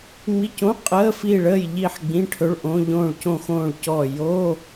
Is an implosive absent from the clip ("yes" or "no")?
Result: yes